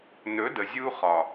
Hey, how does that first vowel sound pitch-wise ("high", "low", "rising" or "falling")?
rising